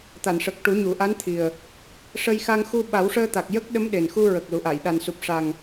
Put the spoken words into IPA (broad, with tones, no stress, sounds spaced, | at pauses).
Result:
t̪ a˨˩˨ n ʂ ə˨˩ k̚ ʈ u˨˩˦ ɲ u˨˩˨ ʔ a˧˥ n t̪ʰ i˨˩ ə̯ | ʂ ə˧ j x a˧ ŋ x u˧ ɓ a˨˩˦ w ʂ əː˧ t̪ a˨˩ k̚ j ə˦˥ k̚ ɗ ə˧˥ m ɗ e˨˩ n x u˧ ɹ ə˨˩ k̚ l u˨˩˨ ʔ a˨˩˨ j ɗ a˨˩ n s u˨˩ p̚ ʂ a˨˩ ŋ